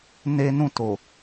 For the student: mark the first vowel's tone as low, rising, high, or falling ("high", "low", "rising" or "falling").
high